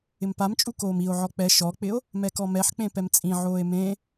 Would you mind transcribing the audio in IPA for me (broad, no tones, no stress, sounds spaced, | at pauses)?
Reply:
ɪ m p a m t͡ʃʼ u k oː m i o̯ ʕ ɔ k͡p ɛ ʃ ɔ k͡p ɪ o̯ | m ɛ k ɔ m ɛ ħ k͡p ẽ p ɛ m t͡sʼ ĩ ʕ oː e̯ m ẽ